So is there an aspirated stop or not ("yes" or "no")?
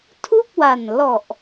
yes